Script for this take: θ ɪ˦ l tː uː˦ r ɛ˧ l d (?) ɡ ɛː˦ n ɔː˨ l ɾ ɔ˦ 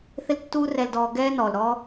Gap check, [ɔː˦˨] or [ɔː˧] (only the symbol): ɔː˧